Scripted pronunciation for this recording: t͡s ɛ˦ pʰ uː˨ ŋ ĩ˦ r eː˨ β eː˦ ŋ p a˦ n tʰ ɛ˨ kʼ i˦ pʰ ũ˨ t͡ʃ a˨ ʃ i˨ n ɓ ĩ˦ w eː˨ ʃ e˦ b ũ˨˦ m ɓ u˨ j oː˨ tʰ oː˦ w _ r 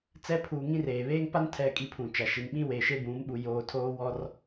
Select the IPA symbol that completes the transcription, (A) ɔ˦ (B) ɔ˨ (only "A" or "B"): A